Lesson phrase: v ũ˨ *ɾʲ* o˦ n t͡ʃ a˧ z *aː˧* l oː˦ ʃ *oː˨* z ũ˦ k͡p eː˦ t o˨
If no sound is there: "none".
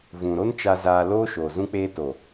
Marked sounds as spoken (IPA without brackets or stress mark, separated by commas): ɾ, aː˧, oː˨